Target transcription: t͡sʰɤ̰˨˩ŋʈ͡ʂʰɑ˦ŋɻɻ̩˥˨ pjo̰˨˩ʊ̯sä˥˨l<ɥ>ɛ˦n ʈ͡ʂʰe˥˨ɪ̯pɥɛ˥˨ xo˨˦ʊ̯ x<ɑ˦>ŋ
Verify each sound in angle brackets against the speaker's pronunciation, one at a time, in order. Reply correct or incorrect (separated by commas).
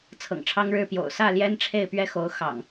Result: incorrect, incorrect